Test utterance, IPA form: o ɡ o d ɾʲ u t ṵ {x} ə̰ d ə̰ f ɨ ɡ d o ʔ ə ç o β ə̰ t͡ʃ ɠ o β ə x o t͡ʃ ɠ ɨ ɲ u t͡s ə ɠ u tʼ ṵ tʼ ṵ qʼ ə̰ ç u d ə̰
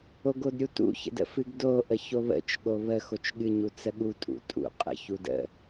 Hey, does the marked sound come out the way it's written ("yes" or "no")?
no